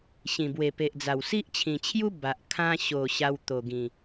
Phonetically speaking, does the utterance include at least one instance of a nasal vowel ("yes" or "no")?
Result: yes